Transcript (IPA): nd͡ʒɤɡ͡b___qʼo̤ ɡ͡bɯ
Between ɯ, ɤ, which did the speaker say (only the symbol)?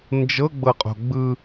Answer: ɤ